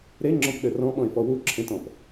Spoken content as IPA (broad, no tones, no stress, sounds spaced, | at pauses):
ɾ e ŋ͡ǁ ɔ̃ p ɗ ɘ r ɔ̃ ɓ ɔ̃ ɪ̯ f ɔ w u ǁʰ ẽ t ɔ̃ p